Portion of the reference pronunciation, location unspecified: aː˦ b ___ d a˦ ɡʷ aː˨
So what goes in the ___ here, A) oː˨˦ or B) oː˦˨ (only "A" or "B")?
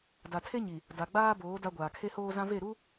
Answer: A